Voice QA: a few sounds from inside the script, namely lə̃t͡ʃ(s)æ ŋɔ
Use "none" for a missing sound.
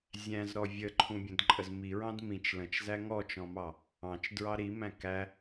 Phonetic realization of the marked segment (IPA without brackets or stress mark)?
z